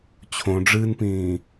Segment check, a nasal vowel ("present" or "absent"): present